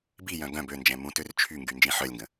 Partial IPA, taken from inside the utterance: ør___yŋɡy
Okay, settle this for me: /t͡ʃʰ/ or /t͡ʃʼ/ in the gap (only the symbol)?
t͡ʃʰ